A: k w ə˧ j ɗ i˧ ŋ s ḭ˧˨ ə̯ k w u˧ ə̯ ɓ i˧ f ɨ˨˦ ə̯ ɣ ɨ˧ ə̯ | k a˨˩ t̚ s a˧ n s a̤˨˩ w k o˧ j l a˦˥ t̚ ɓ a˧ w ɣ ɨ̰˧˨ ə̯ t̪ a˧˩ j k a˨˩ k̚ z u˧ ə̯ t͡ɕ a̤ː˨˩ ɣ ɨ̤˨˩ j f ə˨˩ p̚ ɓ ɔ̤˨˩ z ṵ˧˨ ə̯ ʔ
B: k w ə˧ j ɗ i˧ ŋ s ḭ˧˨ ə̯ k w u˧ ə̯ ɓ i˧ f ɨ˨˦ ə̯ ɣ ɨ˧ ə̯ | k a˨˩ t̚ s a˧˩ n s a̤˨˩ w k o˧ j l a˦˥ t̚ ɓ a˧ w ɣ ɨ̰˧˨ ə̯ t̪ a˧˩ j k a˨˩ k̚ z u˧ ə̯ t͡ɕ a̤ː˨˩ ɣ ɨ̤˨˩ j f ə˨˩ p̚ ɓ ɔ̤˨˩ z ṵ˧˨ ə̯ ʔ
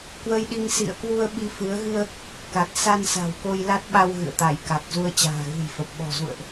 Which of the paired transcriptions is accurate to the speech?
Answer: A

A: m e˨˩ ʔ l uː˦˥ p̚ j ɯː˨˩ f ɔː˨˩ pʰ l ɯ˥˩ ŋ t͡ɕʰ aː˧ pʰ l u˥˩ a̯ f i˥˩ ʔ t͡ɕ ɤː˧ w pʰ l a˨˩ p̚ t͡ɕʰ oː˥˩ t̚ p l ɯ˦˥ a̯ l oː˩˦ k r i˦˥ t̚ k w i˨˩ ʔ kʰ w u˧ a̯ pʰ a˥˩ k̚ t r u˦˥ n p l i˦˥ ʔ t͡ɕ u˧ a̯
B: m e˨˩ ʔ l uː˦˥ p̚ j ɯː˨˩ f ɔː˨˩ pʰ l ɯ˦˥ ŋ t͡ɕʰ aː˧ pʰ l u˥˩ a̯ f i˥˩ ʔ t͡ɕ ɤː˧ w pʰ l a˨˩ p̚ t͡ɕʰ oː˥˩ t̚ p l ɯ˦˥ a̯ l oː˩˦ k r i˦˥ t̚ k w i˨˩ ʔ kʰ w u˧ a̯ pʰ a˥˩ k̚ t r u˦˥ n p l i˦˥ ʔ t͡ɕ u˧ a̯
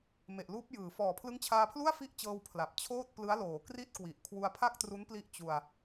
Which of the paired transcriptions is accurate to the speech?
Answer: B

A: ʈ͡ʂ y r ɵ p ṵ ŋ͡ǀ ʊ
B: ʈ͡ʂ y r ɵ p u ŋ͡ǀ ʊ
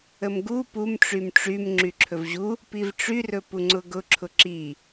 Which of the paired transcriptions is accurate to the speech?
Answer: B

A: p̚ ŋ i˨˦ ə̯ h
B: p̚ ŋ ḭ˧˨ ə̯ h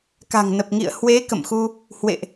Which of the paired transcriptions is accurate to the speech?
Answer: B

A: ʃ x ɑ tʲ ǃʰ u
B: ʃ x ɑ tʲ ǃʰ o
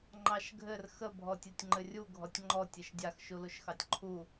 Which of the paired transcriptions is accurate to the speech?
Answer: A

